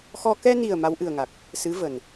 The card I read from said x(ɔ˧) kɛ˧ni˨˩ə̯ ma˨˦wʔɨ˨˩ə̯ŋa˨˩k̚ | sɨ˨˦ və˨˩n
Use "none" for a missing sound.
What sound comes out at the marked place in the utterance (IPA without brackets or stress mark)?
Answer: ɔ˧